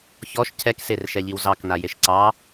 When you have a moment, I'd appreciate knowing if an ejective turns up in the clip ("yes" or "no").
no